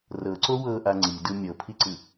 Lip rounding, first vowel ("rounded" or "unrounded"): unrounded